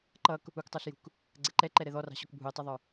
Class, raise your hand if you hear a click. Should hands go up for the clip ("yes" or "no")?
yes